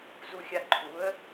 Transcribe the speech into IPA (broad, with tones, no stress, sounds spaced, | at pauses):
z u˧ xʲ a˧ ǃʰ u˩˥ ə̯